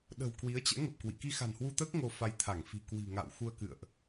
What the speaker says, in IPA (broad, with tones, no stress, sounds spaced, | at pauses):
ɗ ə̤˨˩ w k w i˨˦ ə̯ t͡ɕ ɛ̰˧˥ ŋ ə˨˩ p̚ k w ḭ˧˨ k i˧ x a̤˨˩ n h w u˧ t̪ əː˦˥ k̚ ŋ o˧ f a˧ j t̪ʰ a˧˩ ŋ f i̤˨˩ k w i̤˨˩ ŋ a̰˧˨ w x u˧ ə̯ k ɨ̰˧˨ ə̯ ʔ